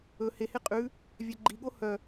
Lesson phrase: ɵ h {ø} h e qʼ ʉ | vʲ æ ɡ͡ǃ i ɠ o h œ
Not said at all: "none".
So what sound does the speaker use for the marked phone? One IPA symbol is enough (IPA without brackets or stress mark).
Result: e